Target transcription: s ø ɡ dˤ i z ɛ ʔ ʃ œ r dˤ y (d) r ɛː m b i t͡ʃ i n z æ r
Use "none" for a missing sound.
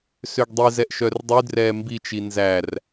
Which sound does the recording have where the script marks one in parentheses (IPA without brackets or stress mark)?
d